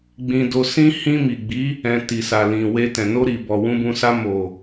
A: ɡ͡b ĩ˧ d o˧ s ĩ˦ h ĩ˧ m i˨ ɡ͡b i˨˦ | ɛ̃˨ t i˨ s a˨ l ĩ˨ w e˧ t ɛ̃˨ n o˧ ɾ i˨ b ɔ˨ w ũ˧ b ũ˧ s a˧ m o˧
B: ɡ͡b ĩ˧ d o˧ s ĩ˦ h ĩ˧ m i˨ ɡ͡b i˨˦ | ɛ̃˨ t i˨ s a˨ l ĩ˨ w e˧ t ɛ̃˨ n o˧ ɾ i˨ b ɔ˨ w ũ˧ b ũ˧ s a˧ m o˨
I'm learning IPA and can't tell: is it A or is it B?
B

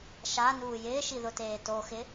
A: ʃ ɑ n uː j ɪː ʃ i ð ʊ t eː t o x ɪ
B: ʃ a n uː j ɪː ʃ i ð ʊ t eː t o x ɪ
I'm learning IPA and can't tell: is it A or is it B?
B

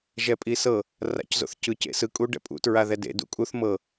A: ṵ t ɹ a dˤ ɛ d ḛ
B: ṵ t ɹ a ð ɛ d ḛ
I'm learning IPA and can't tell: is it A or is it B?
B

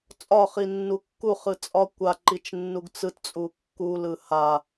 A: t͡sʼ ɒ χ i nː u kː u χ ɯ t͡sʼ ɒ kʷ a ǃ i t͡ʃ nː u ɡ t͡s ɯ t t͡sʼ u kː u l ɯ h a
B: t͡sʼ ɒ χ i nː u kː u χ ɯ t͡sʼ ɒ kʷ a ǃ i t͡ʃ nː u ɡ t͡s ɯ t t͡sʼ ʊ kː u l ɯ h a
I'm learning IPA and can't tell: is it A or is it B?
A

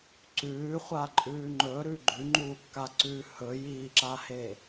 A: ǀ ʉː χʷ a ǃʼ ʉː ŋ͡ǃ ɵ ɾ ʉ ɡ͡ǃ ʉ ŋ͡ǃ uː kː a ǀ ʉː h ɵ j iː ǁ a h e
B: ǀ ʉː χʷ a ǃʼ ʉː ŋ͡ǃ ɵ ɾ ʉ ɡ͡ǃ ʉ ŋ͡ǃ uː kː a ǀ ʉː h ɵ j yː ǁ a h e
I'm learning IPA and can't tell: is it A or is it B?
A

